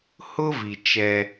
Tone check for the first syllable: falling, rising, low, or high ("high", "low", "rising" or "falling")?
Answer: high